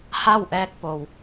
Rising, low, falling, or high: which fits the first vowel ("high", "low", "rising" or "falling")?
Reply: falling